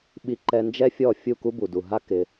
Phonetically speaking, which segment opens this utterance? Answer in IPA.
ɓ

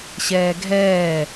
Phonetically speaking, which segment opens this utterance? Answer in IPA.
ɕ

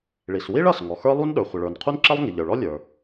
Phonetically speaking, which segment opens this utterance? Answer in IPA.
ɭ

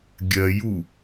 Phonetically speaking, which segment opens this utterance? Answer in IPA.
ɡʲ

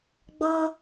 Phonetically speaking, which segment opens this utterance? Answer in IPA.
ɡ͡b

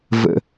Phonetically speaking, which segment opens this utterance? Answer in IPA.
v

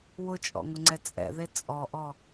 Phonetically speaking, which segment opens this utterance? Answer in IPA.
w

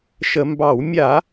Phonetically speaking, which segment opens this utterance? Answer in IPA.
ʃ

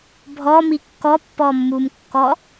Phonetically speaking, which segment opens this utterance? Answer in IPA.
bʱ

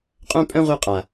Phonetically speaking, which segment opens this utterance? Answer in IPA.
qʼ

